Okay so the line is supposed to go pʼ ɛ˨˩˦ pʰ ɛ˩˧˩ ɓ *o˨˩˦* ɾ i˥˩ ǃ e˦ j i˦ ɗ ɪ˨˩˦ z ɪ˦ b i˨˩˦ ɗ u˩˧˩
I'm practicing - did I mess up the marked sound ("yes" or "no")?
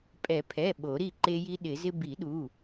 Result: no